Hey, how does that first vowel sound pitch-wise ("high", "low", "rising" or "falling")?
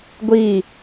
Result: falling